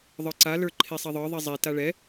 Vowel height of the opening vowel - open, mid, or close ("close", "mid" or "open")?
mid